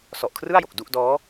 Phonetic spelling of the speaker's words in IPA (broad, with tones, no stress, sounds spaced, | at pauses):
s ɔ˨˩ ʔ kʰ r ɯ˥˩ a̯ j o˨˩ k̚ d u˥˩ ʔ d ɔː˦˥